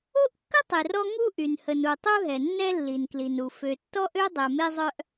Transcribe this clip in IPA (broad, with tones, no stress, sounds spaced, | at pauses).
o˥ ʔ kː ə˥ tˤ i˩ r ɔ˥ ŋ u˥ ʔ y˩ n h ə˩ n u˩ tˤ u˥ ɦ ɛ˩ nː ɛ˥ lː i˩ n k l i˩ n u˩ f ø˩ tː ɔ˥ ʔ ø˥ dˤ ɛ˩ m e˥ zˤ œ˥ ʔ